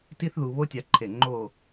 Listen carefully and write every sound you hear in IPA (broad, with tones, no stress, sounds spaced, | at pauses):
t i˥ θ ð u˧ β o˥ tʲ a˧ ǃʰ e˧˩ ŋ͡ǃ o˥˧